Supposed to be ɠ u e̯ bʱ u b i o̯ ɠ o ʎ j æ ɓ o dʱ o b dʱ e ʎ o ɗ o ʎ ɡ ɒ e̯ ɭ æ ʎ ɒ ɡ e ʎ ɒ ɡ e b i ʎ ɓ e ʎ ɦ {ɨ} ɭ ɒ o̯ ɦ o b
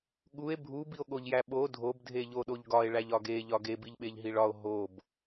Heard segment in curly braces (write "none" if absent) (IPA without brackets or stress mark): i